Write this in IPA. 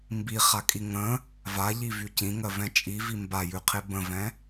mbiχakʼi ŋə̃ | vaʎivy cĩŋɜvɛ̃ t͡ʃʼivi mbajʉqʰe bə̃vɛ̃

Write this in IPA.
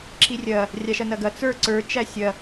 ǁirʲɐ | rʲaʃɐnɐɡɐ t͡sə˞ ǀə˞t͡ʃæ sʲɐ

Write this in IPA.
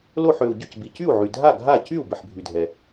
lo˥˩ħø˩u̯ ɟʏ˥˩cbi˩cy˥˩u̯ʕy˩ dʱa˥˩ɡʱa˥˩ cy˥˩u̯ bɪ˩ħbʱy˩dʱɛ˩

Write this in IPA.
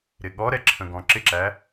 ɾɪɠɔɾɛ ǁʰə̃ɡɔ̃ǁɪǁæ

